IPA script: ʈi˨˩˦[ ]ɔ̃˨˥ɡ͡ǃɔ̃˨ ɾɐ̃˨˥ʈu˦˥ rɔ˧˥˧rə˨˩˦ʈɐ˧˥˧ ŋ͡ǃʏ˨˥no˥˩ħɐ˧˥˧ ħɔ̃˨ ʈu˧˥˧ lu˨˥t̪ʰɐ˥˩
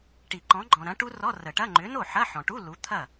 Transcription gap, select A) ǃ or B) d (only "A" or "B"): A